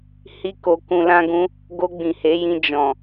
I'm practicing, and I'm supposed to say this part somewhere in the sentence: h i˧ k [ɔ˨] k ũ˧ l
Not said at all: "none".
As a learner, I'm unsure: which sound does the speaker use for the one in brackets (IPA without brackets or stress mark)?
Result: o˨